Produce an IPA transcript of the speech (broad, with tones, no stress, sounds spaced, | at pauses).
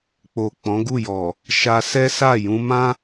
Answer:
k͡p o˨ k͡p ɔ̃˨˦ ɡ u˦˨ j ɔ˨ | ʃ a˧ s ɛ˦ s a˦˨ j ũ˧ m ã˦